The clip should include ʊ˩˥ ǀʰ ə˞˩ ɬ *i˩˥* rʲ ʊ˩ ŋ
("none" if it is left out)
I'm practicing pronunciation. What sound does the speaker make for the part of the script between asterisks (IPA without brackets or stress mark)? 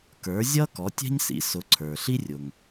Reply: i˥